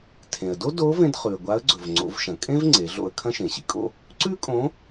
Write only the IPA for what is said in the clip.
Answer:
tʰẽ˩ə̯do˥ do˧˥vẽ˧d χʉ˩ə̯ɡʷa˧˥ə̯ɡ͡ǀɵ˩v ŋ͡ǀo̰˩˧vʃɐ̃˩kʼẽ˥v ŋ͡ǀe˩˧ɮo̰˧ə̯ kʰɐ̃˥ʃẽ˩ɕḭ˧kʼo̰˥ | ǀʉ˥kʼõ˧˥

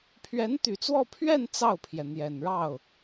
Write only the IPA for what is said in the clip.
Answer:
pʰɥɛ˧˥nt̪y˨˩t͡swɔ˥˧ pʰɥɛ˥˧n t͡sɑ˥˩ʊ̯pʰjɛ˩ n̪jɛ˨˩nɻɑ˥˩ʊ̯

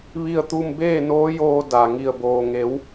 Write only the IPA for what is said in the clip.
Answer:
ʋi˥˨ə̯t̪u˥˨m beː˥˨noː˧˥joː˧ da˩ ŋi˧˩ə̯boː˩ ŋe˩˧w

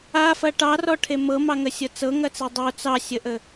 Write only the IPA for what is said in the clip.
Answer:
afɐ ʈɑrɔʈʰe mɤmɑŋəsʲɤ t͡sɤŋɐt͡se dˤo t͡sɑsʲəʔə

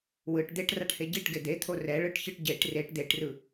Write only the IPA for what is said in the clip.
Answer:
wɯʈ d̪eʈraʈhe ɟiʈɡe d̪et̪ʰo rɛɭɯʈçɯʈ ɟeʈ reʈ d̪eʈrɯ

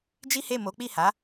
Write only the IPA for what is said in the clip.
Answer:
d͡ʒi˦he˦˨ mo˨˦k͡pi˦˨ha˨˦

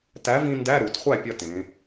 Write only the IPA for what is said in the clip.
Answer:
tæ˨˥vĩ˧ ndæ˧˥˧ɾu˩˧tχʷæ˥˩ pʲɐ˧ tẽ˩˧

